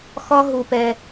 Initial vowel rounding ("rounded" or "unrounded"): rounded